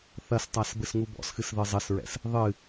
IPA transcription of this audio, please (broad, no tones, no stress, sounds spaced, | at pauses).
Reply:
θ ɐ s tˤ a s b ɘ s ŋ u b ɔ̰ s x ɨ s ð ɨ zˤ ɘ s ɹ ɛ̰ s | ðˤ ɨ